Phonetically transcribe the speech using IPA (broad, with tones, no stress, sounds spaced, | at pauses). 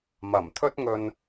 m ɐ˨˩ m t̪ʰ ɵ˥ t̚ ŋ ɵ˧ n